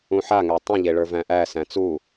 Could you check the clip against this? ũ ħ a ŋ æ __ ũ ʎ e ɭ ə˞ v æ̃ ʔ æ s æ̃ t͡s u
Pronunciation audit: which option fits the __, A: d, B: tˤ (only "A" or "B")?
B